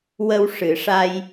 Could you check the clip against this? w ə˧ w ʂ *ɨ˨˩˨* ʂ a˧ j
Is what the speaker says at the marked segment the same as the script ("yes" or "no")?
yes